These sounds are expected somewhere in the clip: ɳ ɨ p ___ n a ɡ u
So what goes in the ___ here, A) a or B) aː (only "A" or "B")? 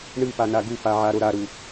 A